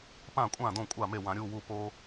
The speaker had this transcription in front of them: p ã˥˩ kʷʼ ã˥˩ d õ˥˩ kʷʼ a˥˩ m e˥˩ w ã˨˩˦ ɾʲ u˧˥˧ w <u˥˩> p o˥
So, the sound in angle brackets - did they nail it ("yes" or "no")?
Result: yes